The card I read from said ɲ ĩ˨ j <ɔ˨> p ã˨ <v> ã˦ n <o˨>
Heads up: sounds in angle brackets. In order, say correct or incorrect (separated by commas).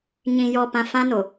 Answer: correct, incorrect, correct